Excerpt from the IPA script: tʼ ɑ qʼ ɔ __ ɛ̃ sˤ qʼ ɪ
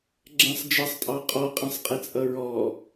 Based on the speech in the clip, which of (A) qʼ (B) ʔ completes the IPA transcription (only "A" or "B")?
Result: A